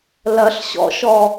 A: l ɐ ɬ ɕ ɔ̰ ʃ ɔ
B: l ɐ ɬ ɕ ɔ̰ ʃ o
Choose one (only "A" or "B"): A